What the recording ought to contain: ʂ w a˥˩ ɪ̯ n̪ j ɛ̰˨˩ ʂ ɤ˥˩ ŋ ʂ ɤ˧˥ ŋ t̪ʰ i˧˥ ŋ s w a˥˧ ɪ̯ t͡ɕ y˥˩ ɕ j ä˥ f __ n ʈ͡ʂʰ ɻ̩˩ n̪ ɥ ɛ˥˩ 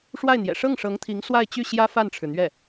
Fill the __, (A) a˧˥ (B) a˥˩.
B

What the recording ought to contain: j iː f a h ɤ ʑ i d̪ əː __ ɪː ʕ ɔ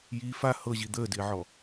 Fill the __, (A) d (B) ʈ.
A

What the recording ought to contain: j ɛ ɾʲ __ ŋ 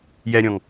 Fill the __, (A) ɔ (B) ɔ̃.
B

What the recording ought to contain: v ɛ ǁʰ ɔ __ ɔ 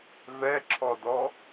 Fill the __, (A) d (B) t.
A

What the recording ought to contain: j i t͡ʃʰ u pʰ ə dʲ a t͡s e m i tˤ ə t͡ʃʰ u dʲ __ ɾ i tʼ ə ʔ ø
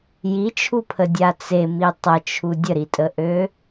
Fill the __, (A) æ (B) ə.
B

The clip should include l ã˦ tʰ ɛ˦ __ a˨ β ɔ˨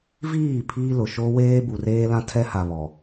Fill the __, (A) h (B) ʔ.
A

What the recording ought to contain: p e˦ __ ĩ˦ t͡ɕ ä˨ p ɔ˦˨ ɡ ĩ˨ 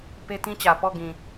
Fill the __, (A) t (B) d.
A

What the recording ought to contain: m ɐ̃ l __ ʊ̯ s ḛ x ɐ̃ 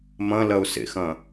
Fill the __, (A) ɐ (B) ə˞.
A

